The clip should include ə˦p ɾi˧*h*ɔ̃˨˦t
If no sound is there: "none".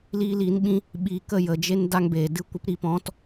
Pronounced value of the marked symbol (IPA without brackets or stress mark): p